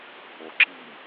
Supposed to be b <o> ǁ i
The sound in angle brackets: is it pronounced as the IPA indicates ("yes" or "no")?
yes